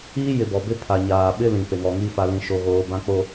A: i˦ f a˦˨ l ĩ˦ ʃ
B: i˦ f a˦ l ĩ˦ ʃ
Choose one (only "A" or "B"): B